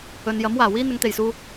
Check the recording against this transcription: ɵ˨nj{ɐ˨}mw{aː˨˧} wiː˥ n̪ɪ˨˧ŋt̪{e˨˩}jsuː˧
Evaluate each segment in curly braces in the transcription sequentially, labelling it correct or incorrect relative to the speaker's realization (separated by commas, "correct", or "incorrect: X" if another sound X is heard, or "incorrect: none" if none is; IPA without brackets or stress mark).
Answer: incorrect: ɐ˨˥, incorrect: aː˨˩, correct